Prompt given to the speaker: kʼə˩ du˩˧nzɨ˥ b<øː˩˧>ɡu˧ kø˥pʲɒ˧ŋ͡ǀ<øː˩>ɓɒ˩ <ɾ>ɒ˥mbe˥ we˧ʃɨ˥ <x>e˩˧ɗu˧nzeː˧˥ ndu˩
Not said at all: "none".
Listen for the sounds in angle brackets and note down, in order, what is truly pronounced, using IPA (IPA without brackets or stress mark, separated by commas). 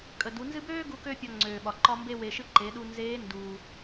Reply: øː˥, øː˩, ǃ, ǃ